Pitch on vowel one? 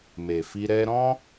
low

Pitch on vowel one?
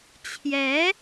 rising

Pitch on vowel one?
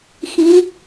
rising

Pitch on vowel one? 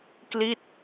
falling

